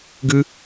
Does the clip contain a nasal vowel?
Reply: no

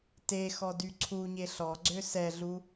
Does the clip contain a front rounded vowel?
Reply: yes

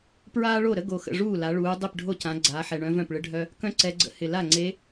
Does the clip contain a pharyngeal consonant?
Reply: yes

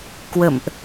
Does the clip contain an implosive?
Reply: no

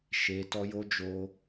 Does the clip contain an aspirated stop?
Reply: no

